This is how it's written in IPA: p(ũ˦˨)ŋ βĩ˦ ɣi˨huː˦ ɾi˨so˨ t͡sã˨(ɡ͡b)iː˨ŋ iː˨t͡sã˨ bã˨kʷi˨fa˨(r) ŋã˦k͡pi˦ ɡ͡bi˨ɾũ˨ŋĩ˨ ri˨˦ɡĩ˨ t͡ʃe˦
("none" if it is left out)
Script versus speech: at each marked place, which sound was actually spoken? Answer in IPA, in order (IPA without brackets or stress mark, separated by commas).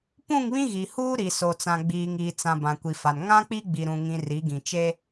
ũ˦˨, ɡ͡b, n